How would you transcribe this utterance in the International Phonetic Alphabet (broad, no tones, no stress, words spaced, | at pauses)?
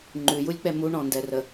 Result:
ŋ͡ǃʉjulʲk͡pɛ muɳɔ̃ndɛrə